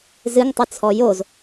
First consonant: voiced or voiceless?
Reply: voiced